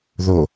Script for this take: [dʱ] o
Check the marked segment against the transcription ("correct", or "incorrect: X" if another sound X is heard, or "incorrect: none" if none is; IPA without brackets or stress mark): incorrect: ð